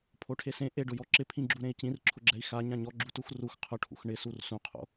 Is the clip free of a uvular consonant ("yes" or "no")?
no